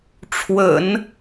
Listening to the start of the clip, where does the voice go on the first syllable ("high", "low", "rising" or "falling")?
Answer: low